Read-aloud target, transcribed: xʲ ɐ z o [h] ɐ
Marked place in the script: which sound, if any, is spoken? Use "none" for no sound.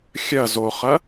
χ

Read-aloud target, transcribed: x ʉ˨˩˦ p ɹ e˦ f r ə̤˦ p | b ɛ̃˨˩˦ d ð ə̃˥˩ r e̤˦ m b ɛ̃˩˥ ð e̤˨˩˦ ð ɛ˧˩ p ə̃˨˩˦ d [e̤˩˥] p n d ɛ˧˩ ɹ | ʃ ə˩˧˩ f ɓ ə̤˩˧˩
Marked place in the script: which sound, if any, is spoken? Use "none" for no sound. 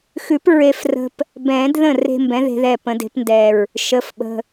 e̤˩˥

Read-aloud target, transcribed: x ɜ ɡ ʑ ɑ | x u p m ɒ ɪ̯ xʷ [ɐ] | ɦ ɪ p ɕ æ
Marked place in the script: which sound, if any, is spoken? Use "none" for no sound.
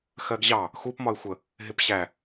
ə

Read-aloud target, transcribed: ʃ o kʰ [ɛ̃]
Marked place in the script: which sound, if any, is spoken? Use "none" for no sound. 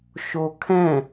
ɛ̃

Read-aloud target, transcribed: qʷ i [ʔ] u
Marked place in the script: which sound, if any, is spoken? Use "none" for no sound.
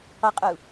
qʼ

